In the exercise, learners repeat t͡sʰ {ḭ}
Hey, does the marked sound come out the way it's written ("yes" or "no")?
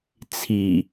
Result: no